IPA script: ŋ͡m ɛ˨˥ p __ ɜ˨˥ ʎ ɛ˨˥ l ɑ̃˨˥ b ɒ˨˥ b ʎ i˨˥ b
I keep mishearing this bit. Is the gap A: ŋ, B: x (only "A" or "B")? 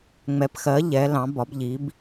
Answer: B